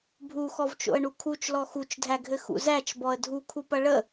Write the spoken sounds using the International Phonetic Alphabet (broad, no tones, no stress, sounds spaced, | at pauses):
bʱ u x ɔ v t͡ʃ o̰ ə̯ ɳ u kʰ u t͡ʃ l ɔ x u t͡ʃ dʱ æ ɡʱ ɘ x ṵ z æ t͡ʃ b ɔ ə̯ dʱ u kʰ u p ɐ ɭ ə